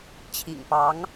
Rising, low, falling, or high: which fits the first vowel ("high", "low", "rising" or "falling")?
low